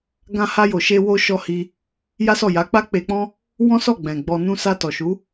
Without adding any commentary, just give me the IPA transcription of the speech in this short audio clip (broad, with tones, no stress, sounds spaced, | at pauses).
ɡ ã˧ h a˧ j o˨ ʃ e˧ w o˧ ʃ ɔ˧ h i˧ | j a˦ s ɔ˦˨ j a˨˦ k͡p a˦ k͡p e˧ k͡p ɔ̃˦ | w ɔ̃˦ s ɔ˦˨ ɡ͡b ɛ̃˨ ɡ͡b ɔ˧ n ũ˦ s a˧ t ɔ˨ ʃ u˨˦